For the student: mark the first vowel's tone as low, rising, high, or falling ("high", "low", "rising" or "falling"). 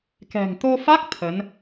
low